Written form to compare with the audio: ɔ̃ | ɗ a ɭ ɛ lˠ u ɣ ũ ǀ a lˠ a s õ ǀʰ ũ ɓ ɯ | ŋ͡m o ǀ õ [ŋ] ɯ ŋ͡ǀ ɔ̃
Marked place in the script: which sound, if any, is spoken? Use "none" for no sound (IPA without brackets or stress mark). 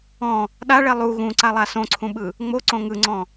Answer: ŋ